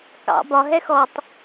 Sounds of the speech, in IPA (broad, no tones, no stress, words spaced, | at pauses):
kɑ̰ bɒ ɦɛxɔtˤ